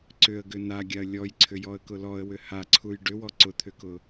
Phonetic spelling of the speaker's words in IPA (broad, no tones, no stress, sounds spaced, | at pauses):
ǀ ʏ ə̯ ɡ ʏ n a ɡʲ a ə̯ lʲ ɔ j ǀʰ ʏ j ɔ ə̯ k ʊ l ɔ ə̯ w ʏ h a ǀʰ u j ɖ ʏ w ɔ ǀ ʊ t̪ʰ ʏ k ʊ